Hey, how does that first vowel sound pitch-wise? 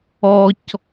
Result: high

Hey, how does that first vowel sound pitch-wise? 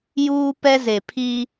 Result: high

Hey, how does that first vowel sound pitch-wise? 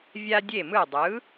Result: high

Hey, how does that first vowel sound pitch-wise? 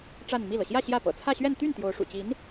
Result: falling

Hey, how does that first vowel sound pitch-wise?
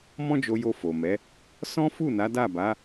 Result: high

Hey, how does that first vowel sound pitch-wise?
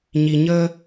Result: low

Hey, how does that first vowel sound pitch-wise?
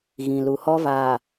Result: low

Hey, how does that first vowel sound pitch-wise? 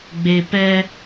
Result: low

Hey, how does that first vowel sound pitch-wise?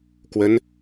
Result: rising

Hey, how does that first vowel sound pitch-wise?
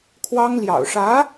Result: high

